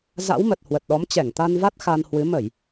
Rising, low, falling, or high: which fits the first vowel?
rising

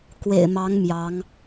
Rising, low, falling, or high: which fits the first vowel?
low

